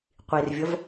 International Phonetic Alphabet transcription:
qʷirvʲʌv

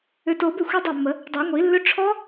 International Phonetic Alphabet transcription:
ʏ˨to˨˩˦bʏ˥˩ xʷi˦˥dˤa˥˩mːə˨˩˦ | dˤɜ˨˩˦ŋʷi˨˩˦lːʏ˦˥ ʈ͡ʂʰɔ˦˥

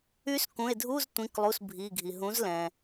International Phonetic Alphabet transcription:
y˧˥skũ˩˧˩e̯dʱu˧˥˧z tʷĩ˩˧˩klˠu˩˧˩s bʱi˩˧˩ɡʱi˩ ɦũ˩˥z lɛ̃˩

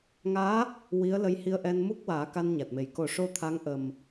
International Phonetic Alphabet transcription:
ŋaː˧˥ | wi˧˥ə̯lə˧jhi˧˥ə̯ʔɛ˧n mu˦˥k̚waː˨˩˦ ka˧nɲa˨˩t̚me˨˩j ko˨˩˦ʂo˧ t̪ʰa˧˥ŋʔə˨˩m

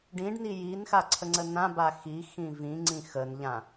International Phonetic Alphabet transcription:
ɖĩɖni jinxa ǀʰəŋ͡ǀənãba xixĩ vĩŋ͡ǀĩ xənʎã

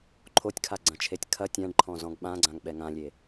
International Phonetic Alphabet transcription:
ǃʰotʲkʰaɡ͡ǀɐ̃t͡ʃʰetʲ kʰɐ tʲãɖǃʰɔ̃zɔ̃ɡ ɓãɡ͡ǀãŋɓɛ ŋãlʲe

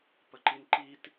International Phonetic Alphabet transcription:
pəǃinǃit

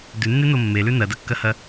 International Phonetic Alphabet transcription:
dʉnːeno mːelʉ nɐdɐkːɐhɐ

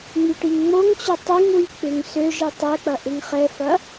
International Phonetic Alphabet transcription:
ŋ͡myʈiŋŋ͡moŋt͡ɕʊ tˤiŋwy k͡pʏŋsøʒi tˤɛk͡pɐ ʔɪŋχɛfɐ

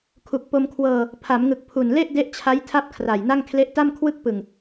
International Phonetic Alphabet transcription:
kʰu˨˩k̚ po˧mkʰwɤː˧ | pʰa˩˦mŋɯ˨˩k̚pʰu˨˩nle˥˩ʔ de˦˥ʔt͡ɕʰa˦˥j tʰa˥˩p̚kʰra˨˩jna˥˩ŋ kʰle˦˥ʔta˥˩m kʰwɯ˥˩k̚ pɯ˨˩ŋ

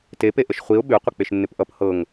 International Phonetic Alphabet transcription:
tepeʔəʃ χʷiʊ̯ ɓʉqʷə k͡peʃnːɪpʔʌp hɤŋ

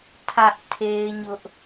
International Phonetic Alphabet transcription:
tʰä˦ʔ tʰe˦ɪ̯ɲʊ˦ʔ

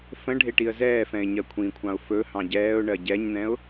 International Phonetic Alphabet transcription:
fə̃ ɖʱeʈiə̯zɛːfɛ̃ɪ̯ ɲɜkʷʰĩkʷʰɑ̃ʊ̯ fɵ hɑ̃ɟɛːʊ̯ɳɜ ɟɛɲn̪ɛ̃ʊ̯

